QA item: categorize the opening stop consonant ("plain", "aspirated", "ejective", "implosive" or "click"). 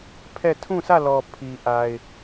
aspirated